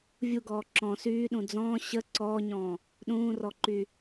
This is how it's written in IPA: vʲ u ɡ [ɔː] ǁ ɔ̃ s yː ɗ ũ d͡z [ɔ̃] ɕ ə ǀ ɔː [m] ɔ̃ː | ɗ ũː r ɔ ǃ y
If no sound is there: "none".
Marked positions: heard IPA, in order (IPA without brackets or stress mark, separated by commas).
ɔː, ɔ̃ː, ɲ